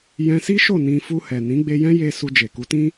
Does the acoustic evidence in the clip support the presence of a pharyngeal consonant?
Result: no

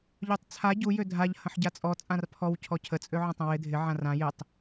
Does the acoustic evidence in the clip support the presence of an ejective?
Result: yes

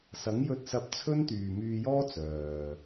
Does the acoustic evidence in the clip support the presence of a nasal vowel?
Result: no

